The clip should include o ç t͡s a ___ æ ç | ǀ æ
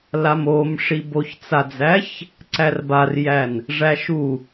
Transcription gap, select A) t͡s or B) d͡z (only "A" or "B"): B